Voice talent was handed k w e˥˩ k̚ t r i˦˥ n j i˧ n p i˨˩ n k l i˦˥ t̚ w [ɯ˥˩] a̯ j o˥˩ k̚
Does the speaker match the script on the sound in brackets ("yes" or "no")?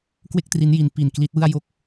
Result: yes